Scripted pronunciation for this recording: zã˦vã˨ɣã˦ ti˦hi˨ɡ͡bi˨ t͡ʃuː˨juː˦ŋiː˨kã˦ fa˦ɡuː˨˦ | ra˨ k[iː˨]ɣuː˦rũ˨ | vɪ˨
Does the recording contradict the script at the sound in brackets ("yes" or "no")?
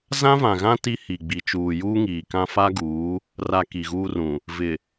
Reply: yes